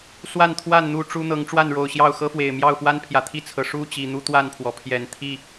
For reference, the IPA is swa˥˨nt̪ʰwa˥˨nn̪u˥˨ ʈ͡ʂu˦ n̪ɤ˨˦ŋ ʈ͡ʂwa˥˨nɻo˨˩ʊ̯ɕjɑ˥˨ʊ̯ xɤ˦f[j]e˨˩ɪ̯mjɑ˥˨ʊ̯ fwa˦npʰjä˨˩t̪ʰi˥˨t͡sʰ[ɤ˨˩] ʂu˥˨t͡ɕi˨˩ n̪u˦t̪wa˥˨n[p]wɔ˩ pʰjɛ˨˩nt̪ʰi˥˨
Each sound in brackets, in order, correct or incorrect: incorrect: w, correct, incorrect: pʰ

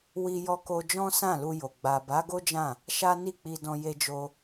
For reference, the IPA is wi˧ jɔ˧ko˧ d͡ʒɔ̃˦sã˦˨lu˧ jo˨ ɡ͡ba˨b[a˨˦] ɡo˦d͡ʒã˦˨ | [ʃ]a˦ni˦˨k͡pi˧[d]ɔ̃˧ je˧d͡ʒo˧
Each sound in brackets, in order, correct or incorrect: correct, correct, correct

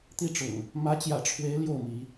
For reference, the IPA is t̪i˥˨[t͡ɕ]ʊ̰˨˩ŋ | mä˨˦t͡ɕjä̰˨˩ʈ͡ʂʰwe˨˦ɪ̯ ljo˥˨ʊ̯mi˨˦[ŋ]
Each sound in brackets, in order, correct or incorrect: incorrect: ʈ͡ʂ, incorrect: none

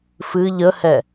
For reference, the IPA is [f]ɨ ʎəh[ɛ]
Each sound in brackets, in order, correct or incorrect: correct, correct

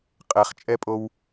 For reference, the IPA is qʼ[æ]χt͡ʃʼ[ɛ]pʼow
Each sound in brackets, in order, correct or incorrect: incorrect: ɛ, correct

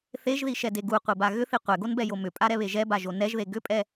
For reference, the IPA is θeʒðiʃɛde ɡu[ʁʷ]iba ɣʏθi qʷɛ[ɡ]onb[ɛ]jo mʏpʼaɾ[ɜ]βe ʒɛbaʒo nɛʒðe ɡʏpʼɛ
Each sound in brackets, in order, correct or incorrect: incorrect: qʷ, correct, correct, incorrect: ɛ

